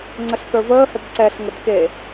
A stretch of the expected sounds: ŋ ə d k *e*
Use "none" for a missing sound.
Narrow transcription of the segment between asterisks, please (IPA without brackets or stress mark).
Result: e